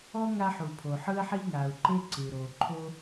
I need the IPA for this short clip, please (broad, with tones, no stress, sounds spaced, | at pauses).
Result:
ɔ˥ ŋ a˥ ħ u˩ pʰ o˩ ħ ɯ˥ ə̯ ħ i˥ ŋ a˩ ʊ̯ ǃ e˥ ǀ ɯ˩ ɾ o˩ ǃʰ o˥